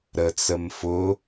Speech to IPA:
ɾət͡səm fʊ

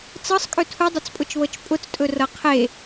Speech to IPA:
t͡sɤsˤkʼɵ tʰudˤʊt͡spʼʊt͡ʃβɤt͡ʃ pʼʊt͡stʼɵrɤ qʰe

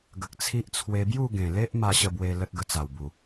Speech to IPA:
ɡə˨k̚t͡sʰi˦ʔ t͡sʰwe˧bju˥˧ɡẽ˨˩le˦ʔ ma˥˧ɕə˥˧bwe˧ lə˦t̚ɡə˧t͡sa˨˩wbu˨˩

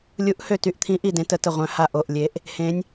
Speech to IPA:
lʲu˨˥ʔhø˧˩ty˧˩ʔt̪ʰĩ˨˥ ʔi˧˩dẽ˨˥tə˨˥ tə˧˩ʁʷœ̃˨˥ ha˧˩ ʔo˧˩ʔlʲe˨˥ʔ | hẽ˨˥nʲ

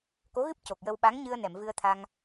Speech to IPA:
ko˧˥ɣɨ˦˥p̚ co˨˩k̚jə˧w ɓa˧˥ŋɲɨ˧ə̯nɛ˨˩˨m vɨ˧ə̯t̪ʰa˧ŋ

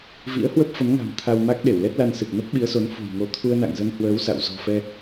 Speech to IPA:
vḭ˧˥ə̯hwə˦˥p̚fə˨˦mŋa̤˨˩m t̪ʰa˧w ma˦˥k̚ɗe˧˩wlɛ˦˥t̚la˧n sɨ˨˩p̚nə˦˥p̚ɓi˨˦ə̯so˨˦n fṳ˨˩jŋo˨˦ t̪ʰu˧ə̯na̰˧˨ŋ zə˧nhwəː˨˦w sa̰˧˨w zɔ̤˨˩fɛ˧

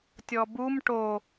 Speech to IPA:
tʲɔbum ʈo

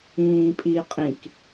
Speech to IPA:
ĩːpʼiqʼĩk

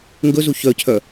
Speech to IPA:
ŋɡɵzu çœcʰœ

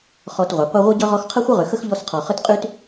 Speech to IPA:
χɔ˨tʁʷɘ˩ qʷi˦ʁʷʌ˥ɟʌ˥ ʁɔ˦xqʰə˥χʷə˥ʁʏ˨ xə˥xʎɔ˦sqʰɔ˨ χə˥tqʼy˥t

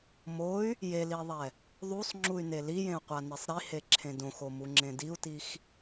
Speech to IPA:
moy̯ | jeliðˤɛ | ðˤusˤŋ͡ǁuy̯ne lijẽu̯qʷanesˤ ɾiheǁʰẽ dõxomuŋ͡ǁẽ diu̯tix

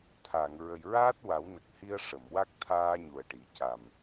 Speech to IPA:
t̪ʰa˨˩˨ŋ ɹə˨˩jɹaː˦˥t̚ wa˨˩˦wnə˨˩k̚hi˧ə̯ ʂə˨˩˨mwa˦˥k̚ t̪ʰaː˧ ɲu˨˩ə̯ʈi˨˩˦ ca˨˩m

